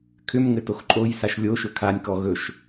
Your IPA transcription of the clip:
kʰ ʏ m ŋ ɘ t o x ǃʼ o j s a ʃ lʲ o ʃ ɵ kʰ a nʲ k ɔ ɣ ɵ ʃ

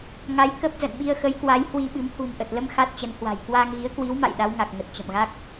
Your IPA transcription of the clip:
ŋ a˨˦ j k ə˦˥ p̚ z ə̰˧˨ n ɓ i˧ ə̯ x ə˨˦ j k w a˨˦ j h w i˧ ɓ ɨ˨˦ m h ṳ˨˩ n ʔ ə˨˩ t̚ l ə˧ m x a˦˥ t̚ t͡ɕ ə˨˦ n h w a̤˨˩ j k w aː˧ ŋ ɣ i˨˦ ə̯ k w i˨˦ w m a̰˧˨ j ɗ a˨˦ w ŋ a˨˩ k̚ ŋ ə˨˩ t̚ t͡ɕ ə̰˧˨ m ɣ a˦˥ k̚

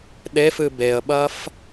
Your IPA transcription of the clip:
ɗ e f ɨ b e ə̯ ɓ ɐ f

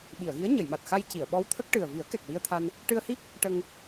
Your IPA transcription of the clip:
ɓ i˨˩˨ ə̯ ɣ i˧˥ ə̯ ɲ ə˨˩˨ j m a˨˩ t̚ x a˧ j c i˨˩˨ ə̯ ɓ ɔ˧˥ w t̪ʰ ə˦˥ k̚ ʈ ɨ˨˩ ə̯ v i˨˩˦ ə̯ k ɛ˨˩ k̚ w i˧ ə̯ t̪ʰ a˧ n | ʈ ɨ˧ ə̯ h i˦˥ k̚ | ʈ ə˧ ŋ

